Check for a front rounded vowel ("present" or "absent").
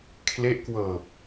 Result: absent